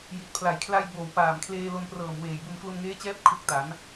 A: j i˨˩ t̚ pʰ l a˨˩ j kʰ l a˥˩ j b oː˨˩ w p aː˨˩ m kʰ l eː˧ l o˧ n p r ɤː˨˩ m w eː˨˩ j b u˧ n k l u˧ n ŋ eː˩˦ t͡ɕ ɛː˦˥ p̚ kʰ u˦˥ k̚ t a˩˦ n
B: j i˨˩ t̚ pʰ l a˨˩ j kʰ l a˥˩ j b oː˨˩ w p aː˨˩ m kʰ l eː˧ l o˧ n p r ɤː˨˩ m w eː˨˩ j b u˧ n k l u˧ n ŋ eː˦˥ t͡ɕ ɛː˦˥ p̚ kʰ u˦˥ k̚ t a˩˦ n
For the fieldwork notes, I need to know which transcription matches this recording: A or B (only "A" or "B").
B